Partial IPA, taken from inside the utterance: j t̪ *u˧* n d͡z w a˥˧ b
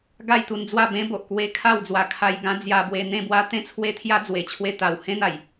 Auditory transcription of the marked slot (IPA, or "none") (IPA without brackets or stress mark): u˧